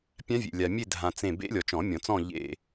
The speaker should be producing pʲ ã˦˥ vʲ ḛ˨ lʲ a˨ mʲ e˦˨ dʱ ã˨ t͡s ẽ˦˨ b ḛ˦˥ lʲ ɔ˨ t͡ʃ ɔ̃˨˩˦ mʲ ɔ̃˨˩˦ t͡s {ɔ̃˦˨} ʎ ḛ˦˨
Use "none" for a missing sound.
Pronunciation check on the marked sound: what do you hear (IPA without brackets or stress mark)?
ɔ̃˦˨